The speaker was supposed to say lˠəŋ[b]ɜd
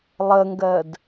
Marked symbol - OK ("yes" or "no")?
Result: no